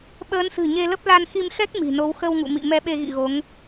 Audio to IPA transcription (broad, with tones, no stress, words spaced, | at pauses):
ɓəː˨˦nsɨ̤˨˩ ɲe˧lə˦˥p̚ la˧nxi˧m xɛ˦˥k̚ mi̤˨˩no˨˦w xə˧wŋṵ˧˨ mḭ˧˨ mɛ˧ɓe˧ɣḭ˧˨ ɣo˨˦ŋ